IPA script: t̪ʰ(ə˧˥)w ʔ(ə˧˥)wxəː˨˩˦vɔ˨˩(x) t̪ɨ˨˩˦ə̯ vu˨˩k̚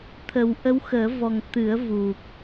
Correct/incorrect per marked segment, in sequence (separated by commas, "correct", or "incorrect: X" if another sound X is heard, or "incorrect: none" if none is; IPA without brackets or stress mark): incorrect: ə˨˩˦, correct, incorrect: ŋ